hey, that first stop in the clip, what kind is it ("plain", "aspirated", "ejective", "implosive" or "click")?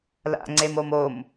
click